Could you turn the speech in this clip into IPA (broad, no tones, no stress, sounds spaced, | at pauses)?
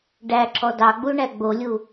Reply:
ɖ æ ǁ ɔ d ɑ ɡ͡b u ɳ æ ɡ͡b o lʲ u